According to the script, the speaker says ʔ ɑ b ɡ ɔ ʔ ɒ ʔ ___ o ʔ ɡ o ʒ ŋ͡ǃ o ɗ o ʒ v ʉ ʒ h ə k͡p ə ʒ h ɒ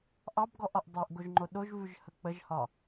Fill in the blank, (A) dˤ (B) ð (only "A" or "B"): A